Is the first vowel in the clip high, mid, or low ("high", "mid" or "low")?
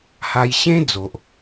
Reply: low